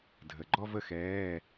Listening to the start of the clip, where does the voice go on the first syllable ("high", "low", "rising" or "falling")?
low